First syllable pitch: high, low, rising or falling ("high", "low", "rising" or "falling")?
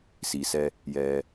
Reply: low